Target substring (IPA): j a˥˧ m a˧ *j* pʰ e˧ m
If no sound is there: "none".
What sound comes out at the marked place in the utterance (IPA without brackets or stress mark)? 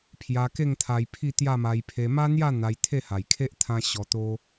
j